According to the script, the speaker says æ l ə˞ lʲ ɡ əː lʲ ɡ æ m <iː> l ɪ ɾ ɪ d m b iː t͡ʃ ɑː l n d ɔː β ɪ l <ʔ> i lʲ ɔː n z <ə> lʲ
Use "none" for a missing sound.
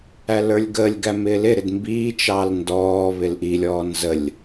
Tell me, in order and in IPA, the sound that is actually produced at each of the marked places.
ɪː, ʔ, ə

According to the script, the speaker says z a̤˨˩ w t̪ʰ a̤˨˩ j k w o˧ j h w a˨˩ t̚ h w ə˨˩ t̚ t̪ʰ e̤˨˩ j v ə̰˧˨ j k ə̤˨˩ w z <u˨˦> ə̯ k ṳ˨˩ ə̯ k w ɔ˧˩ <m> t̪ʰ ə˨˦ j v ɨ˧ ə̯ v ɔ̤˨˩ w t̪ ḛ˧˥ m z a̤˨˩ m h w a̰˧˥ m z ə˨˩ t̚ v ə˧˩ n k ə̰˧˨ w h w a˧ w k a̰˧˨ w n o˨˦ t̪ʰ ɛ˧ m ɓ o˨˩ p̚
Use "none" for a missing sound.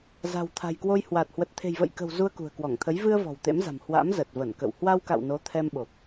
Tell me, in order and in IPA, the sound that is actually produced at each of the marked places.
u˧, ŋ

